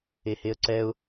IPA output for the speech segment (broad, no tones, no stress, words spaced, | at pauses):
eheə̯ǀɛʊ̯